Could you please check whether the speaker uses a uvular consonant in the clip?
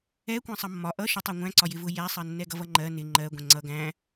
no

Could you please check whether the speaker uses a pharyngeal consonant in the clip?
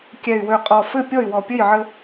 yes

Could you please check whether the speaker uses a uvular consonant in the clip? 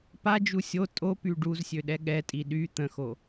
no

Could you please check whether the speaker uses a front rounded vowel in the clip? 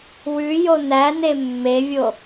no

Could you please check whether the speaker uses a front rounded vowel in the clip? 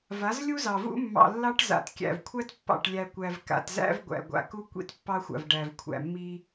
no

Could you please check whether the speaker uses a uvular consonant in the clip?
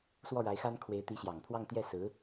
no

